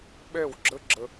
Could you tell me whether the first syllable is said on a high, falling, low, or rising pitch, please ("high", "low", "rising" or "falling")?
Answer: falling